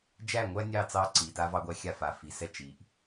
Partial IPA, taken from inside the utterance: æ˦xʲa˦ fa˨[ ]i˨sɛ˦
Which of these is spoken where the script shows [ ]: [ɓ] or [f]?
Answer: f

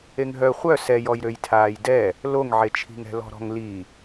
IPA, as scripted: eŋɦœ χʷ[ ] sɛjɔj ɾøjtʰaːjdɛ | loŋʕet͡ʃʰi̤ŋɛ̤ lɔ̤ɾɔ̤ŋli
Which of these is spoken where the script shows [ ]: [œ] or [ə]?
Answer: œ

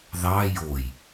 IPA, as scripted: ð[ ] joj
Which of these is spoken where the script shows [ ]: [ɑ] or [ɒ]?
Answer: ɑ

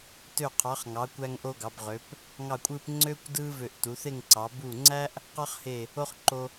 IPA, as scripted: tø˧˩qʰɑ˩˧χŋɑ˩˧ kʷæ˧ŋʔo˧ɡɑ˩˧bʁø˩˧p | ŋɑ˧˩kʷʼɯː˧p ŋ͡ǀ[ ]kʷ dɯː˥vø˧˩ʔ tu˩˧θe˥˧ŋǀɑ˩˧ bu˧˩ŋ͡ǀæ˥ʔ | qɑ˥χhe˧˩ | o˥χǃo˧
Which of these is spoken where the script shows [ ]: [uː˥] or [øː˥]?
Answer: øː˥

